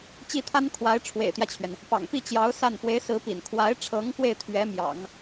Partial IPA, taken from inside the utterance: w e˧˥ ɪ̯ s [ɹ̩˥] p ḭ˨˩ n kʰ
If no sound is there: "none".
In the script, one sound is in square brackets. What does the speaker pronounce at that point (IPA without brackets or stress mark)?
ɹ̩˧˥